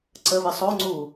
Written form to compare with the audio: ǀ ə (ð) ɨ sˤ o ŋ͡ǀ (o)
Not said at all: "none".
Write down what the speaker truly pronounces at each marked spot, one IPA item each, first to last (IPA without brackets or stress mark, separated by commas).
β, u